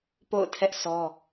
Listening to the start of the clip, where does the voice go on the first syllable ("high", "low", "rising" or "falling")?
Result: falling